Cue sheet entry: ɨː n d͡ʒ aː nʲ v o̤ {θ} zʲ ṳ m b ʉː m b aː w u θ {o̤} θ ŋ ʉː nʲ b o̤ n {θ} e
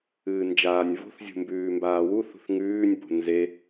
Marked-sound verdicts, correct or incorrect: correct, incorrect: ṳ, incorrect: z

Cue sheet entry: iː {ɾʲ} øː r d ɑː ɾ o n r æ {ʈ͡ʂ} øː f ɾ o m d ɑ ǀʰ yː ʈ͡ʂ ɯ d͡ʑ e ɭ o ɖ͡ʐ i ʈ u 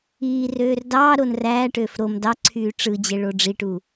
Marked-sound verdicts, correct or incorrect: incorrect: r, incorrect: ʈ

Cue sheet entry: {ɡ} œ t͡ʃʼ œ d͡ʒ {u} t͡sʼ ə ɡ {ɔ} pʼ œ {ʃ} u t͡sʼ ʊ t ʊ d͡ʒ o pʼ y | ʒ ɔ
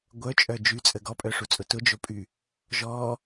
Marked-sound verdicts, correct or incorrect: incorrect: ɡʷ, incorrect: y, correct, incorrect: ʂ

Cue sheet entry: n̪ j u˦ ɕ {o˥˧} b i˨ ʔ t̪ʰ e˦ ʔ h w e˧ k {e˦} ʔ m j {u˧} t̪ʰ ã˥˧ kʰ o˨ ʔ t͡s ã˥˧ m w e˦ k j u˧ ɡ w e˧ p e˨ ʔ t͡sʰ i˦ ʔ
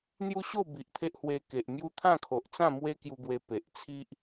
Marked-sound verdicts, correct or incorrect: correct, incorrect: e˨, incorrect: u˦

